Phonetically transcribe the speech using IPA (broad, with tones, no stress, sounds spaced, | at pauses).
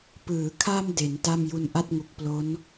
p ɯː˩˦ kʰ a˧ m d e˩˦ n t a˥˩ m j u˧ n ʔ a˥˩ t̚ ŋ u˨˩ k̚ p l o˦˥ n